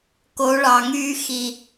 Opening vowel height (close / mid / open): mid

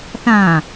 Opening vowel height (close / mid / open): open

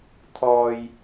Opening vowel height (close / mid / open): mid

